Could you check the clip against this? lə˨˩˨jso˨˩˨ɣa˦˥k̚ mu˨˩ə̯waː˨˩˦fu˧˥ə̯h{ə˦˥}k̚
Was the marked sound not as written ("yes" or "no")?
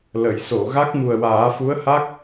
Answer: yes